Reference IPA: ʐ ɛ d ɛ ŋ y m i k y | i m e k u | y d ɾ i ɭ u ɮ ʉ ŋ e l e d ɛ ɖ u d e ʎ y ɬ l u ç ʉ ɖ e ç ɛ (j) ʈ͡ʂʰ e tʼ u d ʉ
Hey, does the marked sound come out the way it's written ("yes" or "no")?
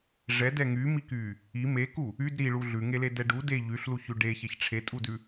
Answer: no